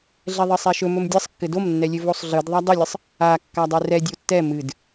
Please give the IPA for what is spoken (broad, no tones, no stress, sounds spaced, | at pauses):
ɮ ɛ ðˤ ɘ sˤ ɛ ʃ ɵ m ɵ m dʲ ɘ sˤ kː ɘ d o m nː ɛ lʲ ɘ v o sˤ ɮ ɨ d ðˤ a dˤ ɵ lʲ ɘ sˤ | a kː a dˤ ɵ r ɛ dʲ o tː ɛ m ɨ d